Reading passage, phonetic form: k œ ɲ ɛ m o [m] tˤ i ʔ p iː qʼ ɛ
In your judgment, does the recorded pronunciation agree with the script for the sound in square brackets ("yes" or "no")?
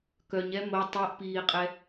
no